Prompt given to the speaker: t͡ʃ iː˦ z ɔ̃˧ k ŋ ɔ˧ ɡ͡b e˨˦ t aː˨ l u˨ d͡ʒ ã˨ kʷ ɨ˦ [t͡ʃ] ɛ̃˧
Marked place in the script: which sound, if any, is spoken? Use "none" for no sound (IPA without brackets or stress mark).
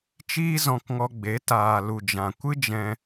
d͡ʒ